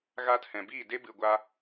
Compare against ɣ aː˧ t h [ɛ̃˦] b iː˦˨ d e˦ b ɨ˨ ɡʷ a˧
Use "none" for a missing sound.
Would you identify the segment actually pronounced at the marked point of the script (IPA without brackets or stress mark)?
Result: ɛ̃˨